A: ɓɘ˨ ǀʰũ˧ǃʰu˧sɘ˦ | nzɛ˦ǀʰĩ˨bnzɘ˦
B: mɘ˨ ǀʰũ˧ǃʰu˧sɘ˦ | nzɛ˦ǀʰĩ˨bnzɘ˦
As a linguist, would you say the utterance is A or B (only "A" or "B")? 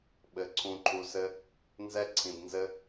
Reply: A